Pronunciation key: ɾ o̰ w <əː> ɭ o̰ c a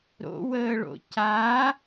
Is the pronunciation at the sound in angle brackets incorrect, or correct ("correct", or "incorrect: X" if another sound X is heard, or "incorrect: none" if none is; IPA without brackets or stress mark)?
correct